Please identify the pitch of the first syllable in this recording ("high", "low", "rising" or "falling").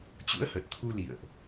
rising